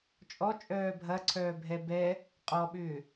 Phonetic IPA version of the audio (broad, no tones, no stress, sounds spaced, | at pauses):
t͡ʃʼ ɔ t͡ʃʼ œː bʱ ɐ ǀʰ œː bʱ ɛ b ɛ | qʼ ɔ ɓ ʏː